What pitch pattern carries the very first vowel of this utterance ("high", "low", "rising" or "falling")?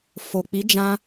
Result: low